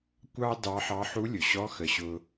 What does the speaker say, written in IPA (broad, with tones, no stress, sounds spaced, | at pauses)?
kʷ ɑ˥ d ɑ˧˥ ħ ɑ˧˥ ħ u˧˥ lʲ ʊ˩ ɕ ɔ˧˥ x ə˩˧ ɕ ʊ˧